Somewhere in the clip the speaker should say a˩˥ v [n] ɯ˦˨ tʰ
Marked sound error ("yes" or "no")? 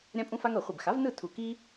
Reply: no